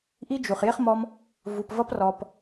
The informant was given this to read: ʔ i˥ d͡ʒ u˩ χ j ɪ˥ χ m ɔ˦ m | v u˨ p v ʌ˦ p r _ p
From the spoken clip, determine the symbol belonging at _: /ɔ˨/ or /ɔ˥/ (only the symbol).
ɔ˨